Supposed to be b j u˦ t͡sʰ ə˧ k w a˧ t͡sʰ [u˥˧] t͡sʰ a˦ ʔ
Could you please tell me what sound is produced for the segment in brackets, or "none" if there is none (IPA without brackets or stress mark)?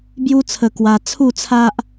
u˥˧